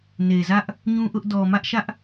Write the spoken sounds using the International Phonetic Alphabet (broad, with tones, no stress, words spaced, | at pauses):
ne˨zä˦ʔ | ɲũ˦ʔʊ˦ʔ dɔ˨mä˦ʔʃä˦ʔ